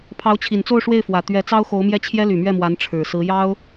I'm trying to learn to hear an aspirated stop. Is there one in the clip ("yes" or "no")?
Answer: yes